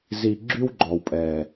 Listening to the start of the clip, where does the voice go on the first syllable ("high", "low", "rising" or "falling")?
low